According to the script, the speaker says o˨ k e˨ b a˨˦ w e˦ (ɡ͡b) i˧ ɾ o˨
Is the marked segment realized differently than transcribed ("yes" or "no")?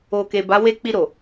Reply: yes